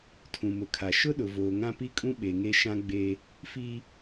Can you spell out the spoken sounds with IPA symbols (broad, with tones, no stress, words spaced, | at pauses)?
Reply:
tʰũ˨mʊ˨kʰa˨ ʃʊ˦ɗʊ˨ voː˨ŋã˦pi˦kʼũ˦ ɓe˨ŋe˦ ʃã˦ɡ͡be˦ | fi˦